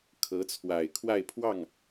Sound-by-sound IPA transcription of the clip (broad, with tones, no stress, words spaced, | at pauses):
kʰɤ˧˥t͡sʰwa˨˩ɪ̯kʰwa˥˧ɪ̯pʰwɑ˥˩ŋ